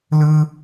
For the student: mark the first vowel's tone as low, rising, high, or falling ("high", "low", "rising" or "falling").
high